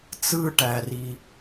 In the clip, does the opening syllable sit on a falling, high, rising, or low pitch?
high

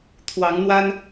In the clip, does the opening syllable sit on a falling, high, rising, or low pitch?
rising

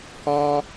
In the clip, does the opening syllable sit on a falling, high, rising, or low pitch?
high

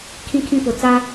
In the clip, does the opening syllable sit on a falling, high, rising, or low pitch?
high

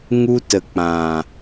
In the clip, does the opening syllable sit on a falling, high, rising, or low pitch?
high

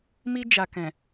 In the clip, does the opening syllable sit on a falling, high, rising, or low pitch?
high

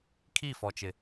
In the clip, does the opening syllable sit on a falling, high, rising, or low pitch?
falling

